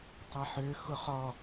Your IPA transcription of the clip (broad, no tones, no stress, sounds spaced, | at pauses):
tˤ a ħ ø x ʊ χ ɔ